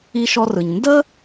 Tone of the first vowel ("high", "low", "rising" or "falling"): high